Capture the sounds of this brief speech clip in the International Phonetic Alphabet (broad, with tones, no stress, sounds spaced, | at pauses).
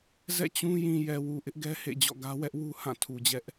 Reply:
z ɛ̰˦˨ t͡ɕ ũ˦ j ĩ˨ j ɛ˨ w u˨ ʔ ɪ˦ ʔ ɡ ɛ˦ h ḛ˦˨ d͡ʑ ɔ̰˦˨ ɡ ä˦ w ɛ˦ ʔ w u˦ h ã˦˨ tʰ u˨ d͡ʑ ɛ˦ ʔ